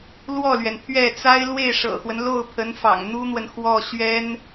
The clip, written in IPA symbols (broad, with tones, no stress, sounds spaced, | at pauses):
l w ɔ˥˩ l ɥ ɛ˩ n pʰ ɥ ɛ˥˩ t͡s a˥ ɪ̯ l w e˥˩ ɪ̯ ʂ ɤ̰˨˩ x w ə˦ n l o˥˩ ʊ̯ pʰ ə˧˥ n f ɑ̰˨˩ ŋ n̪ u˥ n̪ w ə˨ n x w ɔ˥˩ ɕ ɥ ɛ˥ n